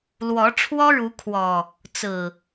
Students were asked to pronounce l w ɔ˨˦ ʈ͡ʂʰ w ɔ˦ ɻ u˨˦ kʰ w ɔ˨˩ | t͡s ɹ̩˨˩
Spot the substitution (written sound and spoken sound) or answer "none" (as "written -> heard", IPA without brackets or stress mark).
none